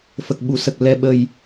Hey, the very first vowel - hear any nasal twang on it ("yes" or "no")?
no